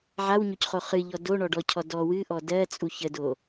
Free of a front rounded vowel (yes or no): yes